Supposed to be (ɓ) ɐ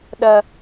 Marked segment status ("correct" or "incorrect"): incorrect